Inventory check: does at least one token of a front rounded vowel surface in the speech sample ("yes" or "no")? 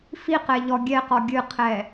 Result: no